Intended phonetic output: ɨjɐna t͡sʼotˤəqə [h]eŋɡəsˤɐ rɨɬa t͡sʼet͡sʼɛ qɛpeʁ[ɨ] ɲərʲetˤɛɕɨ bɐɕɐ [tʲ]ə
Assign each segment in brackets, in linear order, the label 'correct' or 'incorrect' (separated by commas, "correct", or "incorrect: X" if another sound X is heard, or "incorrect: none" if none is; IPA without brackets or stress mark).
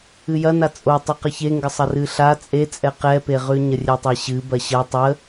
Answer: incorrect: ç, incorrect: ʉ, incorrect: tˤ